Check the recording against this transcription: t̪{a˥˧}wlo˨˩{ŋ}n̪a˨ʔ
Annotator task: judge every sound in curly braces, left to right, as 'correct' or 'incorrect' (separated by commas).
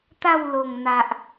correct, correct